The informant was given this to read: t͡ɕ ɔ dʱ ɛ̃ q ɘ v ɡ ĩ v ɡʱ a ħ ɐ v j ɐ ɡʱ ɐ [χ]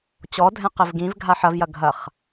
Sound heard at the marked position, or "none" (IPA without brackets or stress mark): χ